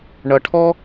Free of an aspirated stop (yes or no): no